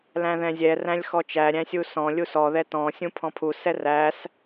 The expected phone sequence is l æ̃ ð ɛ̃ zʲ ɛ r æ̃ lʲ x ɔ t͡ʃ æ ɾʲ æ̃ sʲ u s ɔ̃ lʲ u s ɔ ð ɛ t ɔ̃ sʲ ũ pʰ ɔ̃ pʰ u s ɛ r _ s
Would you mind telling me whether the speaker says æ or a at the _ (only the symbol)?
æ